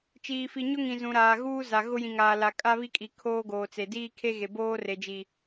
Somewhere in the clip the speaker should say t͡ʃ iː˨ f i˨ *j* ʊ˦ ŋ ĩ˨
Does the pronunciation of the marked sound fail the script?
yes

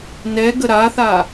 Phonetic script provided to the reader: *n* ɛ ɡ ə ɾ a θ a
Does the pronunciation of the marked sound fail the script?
no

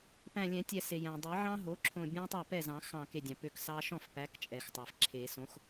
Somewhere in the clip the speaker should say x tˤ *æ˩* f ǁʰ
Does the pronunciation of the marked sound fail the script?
no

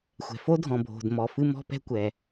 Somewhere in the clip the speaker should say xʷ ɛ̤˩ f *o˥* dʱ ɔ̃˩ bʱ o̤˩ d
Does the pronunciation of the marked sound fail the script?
no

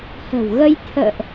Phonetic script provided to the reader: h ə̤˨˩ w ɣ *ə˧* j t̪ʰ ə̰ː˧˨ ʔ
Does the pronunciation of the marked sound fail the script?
no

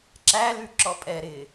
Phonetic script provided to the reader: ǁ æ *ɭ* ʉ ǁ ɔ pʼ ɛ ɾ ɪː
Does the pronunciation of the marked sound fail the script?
yes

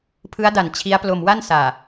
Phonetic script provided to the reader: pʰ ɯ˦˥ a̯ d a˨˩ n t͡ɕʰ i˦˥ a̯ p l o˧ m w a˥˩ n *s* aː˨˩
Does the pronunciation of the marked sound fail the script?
no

